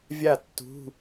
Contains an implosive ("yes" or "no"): no